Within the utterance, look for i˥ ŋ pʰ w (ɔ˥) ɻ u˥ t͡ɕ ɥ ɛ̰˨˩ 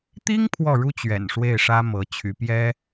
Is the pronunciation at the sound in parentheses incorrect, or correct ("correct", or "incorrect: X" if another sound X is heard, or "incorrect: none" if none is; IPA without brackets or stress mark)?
incorrect: ɔ˥˩